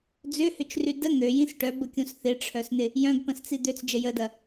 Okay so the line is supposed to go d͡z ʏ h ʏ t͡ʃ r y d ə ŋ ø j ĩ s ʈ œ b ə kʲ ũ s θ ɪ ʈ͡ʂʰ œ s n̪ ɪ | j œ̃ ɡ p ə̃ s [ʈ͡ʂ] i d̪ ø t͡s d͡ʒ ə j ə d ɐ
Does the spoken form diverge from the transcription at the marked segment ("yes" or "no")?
yes